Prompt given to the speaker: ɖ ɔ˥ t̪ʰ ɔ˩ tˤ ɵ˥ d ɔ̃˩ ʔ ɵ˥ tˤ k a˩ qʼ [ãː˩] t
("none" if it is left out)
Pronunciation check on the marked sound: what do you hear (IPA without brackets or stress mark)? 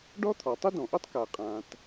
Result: ãː˩